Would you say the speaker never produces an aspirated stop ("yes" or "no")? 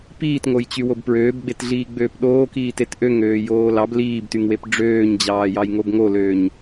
yes